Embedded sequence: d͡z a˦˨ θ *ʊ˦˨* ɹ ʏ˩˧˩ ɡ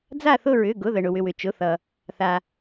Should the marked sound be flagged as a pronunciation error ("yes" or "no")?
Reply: no